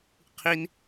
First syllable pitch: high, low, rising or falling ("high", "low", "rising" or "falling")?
high